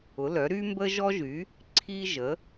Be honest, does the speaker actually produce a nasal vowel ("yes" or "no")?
no